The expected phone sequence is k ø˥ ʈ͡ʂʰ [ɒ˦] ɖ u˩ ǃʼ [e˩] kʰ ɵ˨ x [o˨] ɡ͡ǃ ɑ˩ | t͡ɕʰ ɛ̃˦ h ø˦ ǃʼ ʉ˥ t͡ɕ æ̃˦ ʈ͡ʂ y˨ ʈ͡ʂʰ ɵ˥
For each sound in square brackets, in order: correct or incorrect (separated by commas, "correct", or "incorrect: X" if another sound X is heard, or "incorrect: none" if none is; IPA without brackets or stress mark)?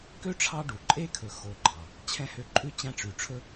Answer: incorrect: ɑ˦, incorrect: e˥, correct